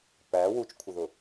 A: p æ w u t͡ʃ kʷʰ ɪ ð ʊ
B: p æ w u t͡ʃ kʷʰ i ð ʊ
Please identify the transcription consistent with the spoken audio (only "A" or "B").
A